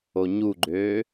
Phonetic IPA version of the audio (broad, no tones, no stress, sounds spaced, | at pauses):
o ɲ u ɡ͡ǃ øː